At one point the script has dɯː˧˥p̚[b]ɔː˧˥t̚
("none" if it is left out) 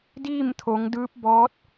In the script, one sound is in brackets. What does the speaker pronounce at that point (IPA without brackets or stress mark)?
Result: b